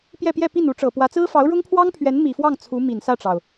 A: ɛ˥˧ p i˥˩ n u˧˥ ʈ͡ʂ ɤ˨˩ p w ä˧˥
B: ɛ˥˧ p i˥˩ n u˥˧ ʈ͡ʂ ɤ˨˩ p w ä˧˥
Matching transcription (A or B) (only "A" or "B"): A